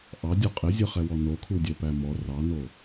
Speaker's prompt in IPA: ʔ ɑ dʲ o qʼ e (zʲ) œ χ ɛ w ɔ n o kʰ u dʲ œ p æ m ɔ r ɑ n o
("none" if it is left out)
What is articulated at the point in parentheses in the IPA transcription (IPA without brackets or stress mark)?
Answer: zʲ